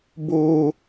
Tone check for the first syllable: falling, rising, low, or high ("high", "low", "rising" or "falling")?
high